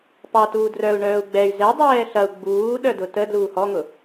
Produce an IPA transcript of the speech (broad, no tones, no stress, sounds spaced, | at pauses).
p ɑ t uː d r œ u̯ ɳ œː u̯ ɡ͡b ɛ y̯ z ɛ dˤ ɛː ɬ ɐ u̯ ɡ͡b uː ɗ œ d ʊ t ə d l uː h ɔ ŋ ʊ